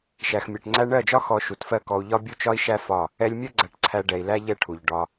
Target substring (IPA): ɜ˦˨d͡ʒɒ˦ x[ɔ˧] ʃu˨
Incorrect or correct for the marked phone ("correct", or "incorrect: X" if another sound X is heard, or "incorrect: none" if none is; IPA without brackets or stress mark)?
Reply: correct